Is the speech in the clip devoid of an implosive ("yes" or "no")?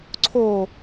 yes